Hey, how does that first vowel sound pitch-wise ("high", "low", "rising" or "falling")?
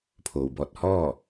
low